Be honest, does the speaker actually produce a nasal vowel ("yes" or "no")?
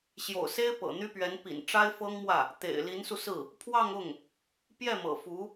no